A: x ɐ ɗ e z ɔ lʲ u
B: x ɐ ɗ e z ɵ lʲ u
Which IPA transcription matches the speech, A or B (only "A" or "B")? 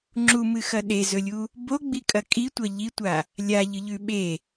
B